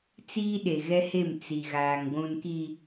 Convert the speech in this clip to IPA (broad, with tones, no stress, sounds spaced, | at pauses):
t͡s iː˦ ɗ e˨ ɣ ɛ˦ h e˦˨ m t͡s i˨ ɣ aː˨ ŋ ɡʷ ũ˨ n k i˨